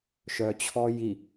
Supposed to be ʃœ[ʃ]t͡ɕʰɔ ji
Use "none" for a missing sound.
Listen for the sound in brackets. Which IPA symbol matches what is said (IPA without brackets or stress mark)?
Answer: none